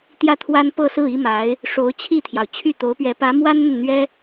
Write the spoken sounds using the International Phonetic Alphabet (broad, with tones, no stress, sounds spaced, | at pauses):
t̪ j ä˥˩ t̪ʰ w a˥ n p ɤ˥˧ s ɹ̩˥˩ i˥ m a˧˥ ɪ̯ | ʂ o˧˥ ʊ̯ t͡ɕʰ i˥˩ t̪ʰ j ɑ˩ ʊ̯ t͡ɕʰ y˥˩ t̪ o˧˥ ʊ̯ p ɥ ɛ˧˥ p ä˧˥ m w a˥ n n̪ ə˨ n n̪ ɥ ɛ˥